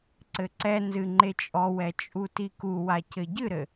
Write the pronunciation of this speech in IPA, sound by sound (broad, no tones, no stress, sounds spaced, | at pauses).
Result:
ǀ ɘ ǀ ɛ n z ɨ ŋ͡ǃ e t͡ʃʼ ɔ w ɛ t͡ʃʼ u t i k u w a c ɘ ɟ ɨ ɾ ɘ